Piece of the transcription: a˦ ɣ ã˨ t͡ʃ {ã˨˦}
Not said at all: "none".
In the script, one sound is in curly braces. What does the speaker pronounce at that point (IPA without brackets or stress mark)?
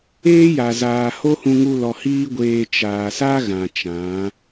ã˨˦